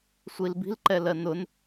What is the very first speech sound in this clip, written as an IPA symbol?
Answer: sʷ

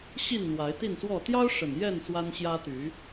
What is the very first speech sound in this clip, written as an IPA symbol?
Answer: ɕ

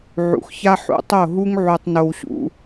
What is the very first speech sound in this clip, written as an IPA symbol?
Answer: ʕ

